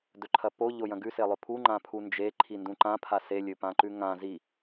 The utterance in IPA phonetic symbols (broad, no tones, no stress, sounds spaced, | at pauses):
d ɵ ǃʰ ɐ p o ʎ o j ɐ̃ ɡ ʉ s e lˠ ɵ pʰ u ŋ͡ǃ ã pʰ u n d͡ʒ e ǃʰ i n d ũ ǃ ã pʰ a s e lʲ ɵ p ã ǃ ʉ ŋ ã z i